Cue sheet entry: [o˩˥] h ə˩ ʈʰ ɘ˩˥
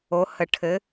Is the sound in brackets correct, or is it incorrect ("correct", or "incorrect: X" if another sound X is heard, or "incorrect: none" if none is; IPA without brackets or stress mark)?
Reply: correct